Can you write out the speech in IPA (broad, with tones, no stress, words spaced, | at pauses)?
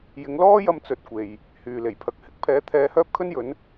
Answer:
jɪ˨˧ŋlɔː˥jɐ˧m t͡sɵ˨t̚kʷe˨j | hyː˨le˨˩jpʰɐ˨˥k̚ hɪ˨˥k̚pʰɛː˨˥ t̪ʰɛː˨˧hœː˥p̚kʰɵ˥njɵ˨˥n